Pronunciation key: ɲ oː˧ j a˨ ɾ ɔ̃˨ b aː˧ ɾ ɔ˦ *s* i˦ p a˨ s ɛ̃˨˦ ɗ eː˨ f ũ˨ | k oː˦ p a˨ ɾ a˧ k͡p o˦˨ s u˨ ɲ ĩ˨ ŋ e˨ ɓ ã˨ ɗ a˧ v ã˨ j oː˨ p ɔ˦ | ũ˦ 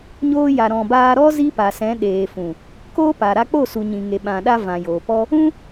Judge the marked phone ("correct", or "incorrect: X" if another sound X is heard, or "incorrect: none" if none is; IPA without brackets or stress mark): incorrect: z